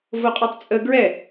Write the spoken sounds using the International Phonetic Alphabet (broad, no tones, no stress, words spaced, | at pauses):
voqʼœtˤt͡sʼə ɡɹɛ